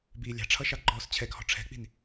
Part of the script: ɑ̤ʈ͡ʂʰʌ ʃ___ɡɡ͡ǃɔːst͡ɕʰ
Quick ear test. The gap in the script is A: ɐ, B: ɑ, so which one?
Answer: B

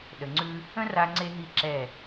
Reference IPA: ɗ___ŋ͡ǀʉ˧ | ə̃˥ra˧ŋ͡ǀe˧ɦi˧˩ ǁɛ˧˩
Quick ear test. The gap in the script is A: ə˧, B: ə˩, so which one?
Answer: B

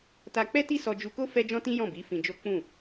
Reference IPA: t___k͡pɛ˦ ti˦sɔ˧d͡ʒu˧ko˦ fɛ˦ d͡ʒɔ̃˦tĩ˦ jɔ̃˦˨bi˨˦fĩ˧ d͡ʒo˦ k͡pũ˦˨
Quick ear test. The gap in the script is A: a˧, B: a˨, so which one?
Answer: A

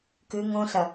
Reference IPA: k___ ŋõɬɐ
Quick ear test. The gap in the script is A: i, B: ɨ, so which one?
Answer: B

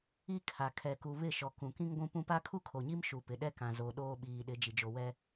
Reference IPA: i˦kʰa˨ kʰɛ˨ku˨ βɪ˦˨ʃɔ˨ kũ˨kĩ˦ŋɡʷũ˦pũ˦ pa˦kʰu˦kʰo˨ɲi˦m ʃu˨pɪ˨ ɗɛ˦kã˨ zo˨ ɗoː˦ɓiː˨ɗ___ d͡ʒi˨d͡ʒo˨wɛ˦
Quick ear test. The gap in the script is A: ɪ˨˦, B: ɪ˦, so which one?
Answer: A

